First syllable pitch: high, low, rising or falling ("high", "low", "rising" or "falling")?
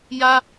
high